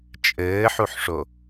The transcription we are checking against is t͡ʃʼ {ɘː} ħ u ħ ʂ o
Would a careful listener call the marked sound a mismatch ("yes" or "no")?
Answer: no